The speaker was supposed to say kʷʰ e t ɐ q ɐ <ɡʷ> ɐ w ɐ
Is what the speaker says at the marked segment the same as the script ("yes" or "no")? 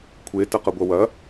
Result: yes